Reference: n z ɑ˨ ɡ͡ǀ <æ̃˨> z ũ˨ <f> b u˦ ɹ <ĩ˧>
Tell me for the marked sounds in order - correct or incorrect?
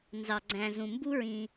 correct, incorrect: m, correct

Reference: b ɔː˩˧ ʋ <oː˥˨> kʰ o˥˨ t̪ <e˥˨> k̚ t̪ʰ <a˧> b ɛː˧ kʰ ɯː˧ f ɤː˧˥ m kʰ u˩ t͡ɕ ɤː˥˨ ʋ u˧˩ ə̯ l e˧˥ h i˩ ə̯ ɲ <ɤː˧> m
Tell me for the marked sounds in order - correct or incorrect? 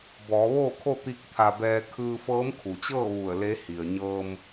correct, incorrect: i˥˨, correct, correct

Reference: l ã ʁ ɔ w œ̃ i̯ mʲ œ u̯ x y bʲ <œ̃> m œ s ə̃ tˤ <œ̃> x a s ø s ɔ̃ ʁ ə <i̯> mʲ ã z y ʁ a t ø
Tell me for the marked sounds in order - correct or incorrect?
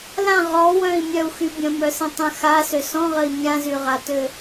incorrect: ə̃, incorrect: ə̃, correct

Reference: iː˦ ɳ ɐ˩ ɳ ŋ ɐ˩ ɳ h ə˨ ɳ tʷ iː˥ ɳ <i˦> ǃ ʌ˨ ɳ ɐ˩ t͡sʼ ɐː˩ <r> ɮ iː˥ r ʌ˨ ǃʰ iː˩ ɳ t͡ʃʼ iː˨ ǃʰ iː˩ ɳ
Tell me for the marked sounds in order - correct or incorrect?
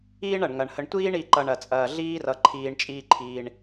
incorrect: i˨, incorrect: none

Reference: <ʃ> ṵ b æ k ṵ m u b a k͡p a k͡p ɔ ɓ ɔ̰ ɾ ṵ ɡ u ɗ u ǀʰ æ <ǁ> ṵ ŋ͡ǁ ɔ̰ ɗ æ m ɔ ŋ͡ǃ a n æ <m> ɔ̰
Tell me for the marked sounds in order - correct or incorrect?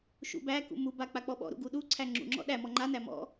correct, incorrect: ŋ͡ǁ, correct

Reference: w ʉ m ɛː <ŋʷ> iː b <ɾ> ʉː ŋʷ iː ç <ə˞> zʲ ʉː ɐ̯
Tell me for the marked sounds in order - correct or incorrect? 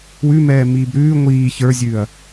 incorrect: m, correct, correct

